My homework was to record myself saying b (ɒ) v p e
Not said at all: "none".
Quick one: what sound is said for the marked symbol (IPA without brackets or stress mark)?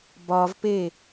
ɒ